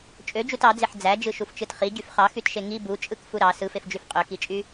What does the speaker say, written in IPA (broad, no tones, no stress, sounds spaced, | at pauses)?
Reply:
t͡ʃʼ ø d͡ʒ u t ɑ d͡z e ħ d͡z æ d͡ʒ ɯ ʃ u f t͡ʃ ɯ t χ i ɟ y f χ ɑ x y t ʃ e ŋ i b u t͡ʃʼ ɯ k f u ɾ ɑ s ɯ f e f d͡ʒ y f qʼ ø k i t͡ʃʼ y